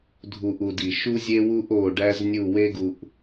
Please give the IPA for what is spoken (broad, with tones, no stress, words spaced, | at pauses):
dʱu˨ʔu˨ di˨ ʃu˦zʲe˦wu˦ʔ o˦˨ɖæ˦z nʲu˦˨we˦ɡu˨ʔ